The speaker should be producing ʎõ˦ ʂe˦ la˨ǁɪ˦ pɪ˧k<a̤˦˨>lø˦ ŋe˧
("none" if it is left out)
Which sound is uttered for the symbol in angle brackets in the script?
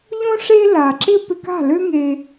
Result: a̤˦˨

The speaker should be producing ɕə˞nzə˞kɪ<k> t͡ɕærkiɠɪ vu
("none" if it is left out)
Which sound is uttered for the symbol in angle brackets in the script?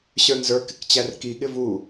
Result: k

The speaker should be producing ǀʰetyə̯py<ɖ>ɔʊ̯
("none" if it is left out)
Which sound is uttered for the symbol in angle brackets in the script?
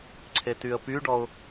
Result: ɖ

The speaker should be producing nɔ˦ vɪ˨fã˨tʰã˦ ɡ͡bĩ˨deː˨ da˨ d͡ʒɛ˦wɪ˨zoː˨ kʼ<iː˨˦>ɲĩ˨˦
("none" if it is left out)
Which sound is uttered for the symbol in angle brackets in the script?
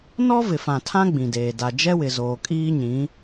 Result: iː˦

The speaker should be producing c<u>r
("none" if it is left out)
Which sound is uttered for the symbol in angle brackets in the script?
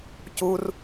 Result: u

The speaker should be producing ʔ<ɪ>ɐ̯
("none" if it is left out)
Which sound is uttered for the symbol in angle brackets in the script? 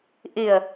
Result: ɪ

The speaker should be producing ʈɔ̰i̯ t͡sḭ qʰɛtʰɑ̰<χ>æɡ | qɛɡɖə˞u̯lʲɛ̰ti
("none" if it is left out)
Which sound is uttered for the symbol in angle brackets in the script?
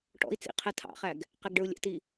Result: χ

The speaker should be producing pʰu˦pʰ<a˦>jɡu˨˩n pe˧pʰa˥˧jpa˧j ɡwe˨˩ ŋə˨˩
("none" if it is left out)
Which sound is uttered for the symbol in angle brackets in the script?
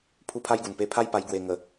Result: a˦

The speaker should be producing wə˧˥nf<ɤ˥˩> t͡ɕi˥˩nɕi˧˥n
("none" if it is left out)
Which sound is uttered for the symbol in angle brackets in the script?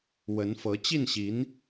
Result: ɤ˧˥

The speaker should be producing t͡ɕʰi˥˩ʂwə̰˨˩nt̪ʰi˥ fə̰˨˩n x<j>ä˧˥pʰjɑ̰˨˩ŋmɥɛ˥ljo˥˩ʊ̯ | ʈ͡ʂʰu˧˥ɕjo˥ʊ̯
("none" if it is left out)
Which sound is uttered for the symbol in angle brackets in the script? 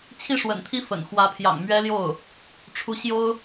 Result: w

